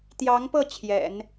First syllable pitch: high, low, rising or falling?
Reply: rising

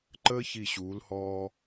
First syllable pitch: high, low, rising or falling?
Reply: high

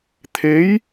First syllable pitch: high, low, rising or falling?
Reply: rising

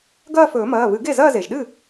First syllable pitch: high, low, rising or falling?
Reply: falling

